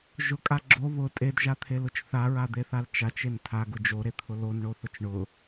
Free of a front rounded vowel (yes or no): yes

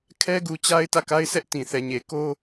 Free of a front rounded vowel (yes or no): yes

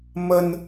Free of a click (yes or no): yes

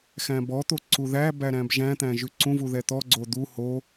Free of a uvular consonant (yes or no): yes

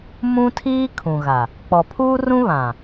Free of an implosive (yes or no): yes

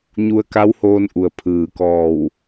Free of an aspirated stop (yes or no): no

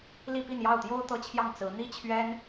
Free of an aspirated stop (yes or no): no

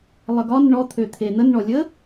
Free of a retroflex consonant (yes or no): no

